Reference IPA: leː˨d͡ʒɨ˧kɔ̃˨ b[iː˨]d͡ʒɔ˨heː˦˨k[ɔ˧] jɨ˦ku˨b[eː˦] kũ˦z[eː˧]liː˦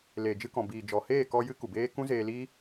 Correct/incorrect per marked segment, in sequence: correct, correct, correct, correct

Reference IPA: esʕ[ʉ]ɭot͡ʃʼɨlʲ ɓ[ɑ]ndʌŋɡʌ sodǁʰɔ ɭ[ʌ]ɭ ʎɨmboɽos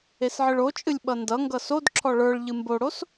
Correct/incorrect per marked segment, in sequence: incorrect: ɨ, incorrect: ʌ, incorrect: ə˞

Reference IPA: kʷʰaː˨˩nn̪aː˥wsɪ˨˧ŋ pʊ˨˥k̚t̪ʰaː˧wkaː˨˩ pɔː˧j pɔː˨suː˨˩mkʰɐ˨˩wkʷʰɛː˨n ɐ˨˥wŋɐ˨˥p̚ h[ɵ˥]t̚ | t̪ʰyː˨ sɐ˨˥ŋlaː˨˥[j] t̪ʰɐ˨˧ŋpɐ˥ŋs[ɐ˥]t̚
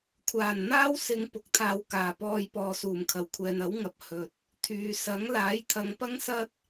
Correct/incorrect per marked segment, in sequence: incorrect: ɵ˨, correct, correct

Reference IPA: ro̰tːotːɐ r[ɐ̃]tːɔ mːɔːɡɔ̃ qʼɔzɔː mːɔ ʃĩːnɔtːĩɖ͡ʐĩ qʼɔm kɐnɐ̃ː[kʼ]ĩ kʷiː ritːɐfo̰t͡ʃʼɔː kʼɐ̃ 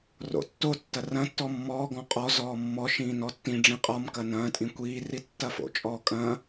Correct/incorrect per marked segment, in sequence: correct, incorrect: tʼ

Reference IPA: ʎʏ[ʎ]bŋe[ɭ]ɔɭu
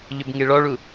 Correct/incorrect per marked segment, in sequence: incorrect: none, correct

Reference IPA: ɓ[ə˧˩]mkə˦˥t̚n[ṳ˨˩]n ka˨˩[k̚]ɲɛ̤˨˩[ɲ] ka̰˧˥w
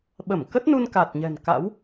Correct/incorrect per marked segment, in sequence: correct, incorrect: u˧, incorrect: t̚, incorrect: n

